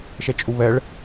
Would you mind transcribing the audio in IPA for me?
ʃ ɛ t͡ʃʼ u β ɛ ɭ

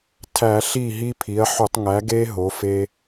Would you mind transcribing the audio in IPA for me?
tʰ æ˧˩˧ ɬ i˥˩ ɦ i˦ pʰ i˩˥ ɐ̯ ħ u˧˩˧ tˤ ŋ æ˩˥ ɡ e˦ ɦ o˩˥ f e˦

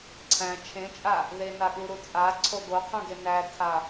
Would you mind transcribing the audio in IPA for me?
ǀʰ æ̃ t͡ʃʰ ẽ t͡ʃʼ a | ð e n a ɠ u ɾ u t͡sʼ a ǀʰ o ɡ o qʰ ũ ɡ e n æ tʰ a

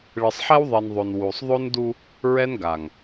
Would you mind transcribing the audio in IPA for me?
ɭ ɨ˨ sˤ ħ ɛ˦ w ðˤ i˨ n ðˤ o˨ n w u˨ sˤ ðˤ o˦ n d u˦ | ɹ ɛ˦ n ɡ a˨ ŋ

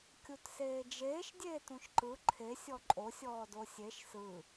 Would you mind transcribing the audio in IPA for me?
kʲ u t s eː d͡ʒ eː ʃ dʲ eː t ũ ʃ ǃ ɯ ǃʰ e sʲ ɔ ǃʼ o sʲ ɔː d o sʲ e ʃ s ɯ

